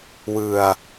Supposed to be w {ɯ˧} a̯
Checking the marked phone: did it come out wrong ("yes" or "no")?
no